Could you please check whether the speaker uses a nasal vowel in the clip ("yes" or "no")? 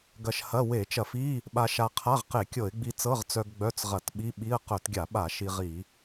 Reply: no